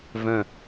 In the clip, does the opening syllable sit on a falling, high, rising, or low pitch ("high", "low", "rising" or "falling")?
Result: low